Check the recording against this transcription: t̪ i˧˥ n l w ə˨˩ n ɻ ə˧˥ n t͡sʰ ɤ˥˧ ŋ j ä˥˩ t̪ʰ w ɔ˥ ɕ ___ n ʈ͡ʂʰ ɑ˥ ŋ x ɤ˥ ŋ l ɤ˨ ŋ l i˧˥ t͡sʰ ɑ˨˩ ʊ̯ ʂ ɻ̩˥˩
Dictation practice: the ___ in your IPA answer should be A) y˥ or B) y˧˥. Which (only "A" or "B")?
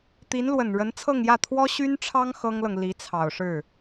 A